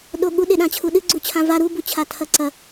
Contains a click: yes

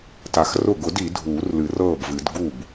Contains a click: no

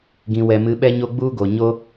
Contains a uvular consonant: no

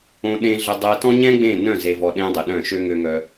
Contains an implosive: yes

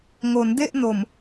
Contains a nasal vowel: no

